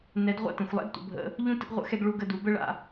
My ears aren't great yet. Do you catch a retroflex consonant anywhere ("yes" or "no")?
yes